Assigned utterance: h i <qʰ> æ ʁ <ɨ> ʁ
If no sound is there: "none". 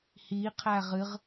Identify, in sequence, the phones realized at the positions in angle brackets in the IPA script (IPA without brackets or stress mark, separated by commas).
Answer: qʰ, ɨ